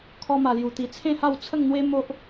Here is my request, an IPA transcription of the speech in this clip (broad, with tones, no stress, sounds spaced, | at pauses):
kʰ ɔ˦ m a˧ l j u˧ t̪ i˧ t͡sʰ ẽ˥˧ h a˥˧ w t͡sʰ ə˥˧ ŋ n̪ w e˦ m o˦ ʔ